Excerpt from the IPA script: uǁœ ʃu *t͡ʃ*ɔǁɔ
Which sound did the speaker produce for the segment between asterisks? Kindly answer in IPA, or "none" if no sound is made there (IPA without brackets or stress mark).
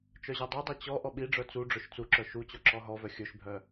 t͡ɕ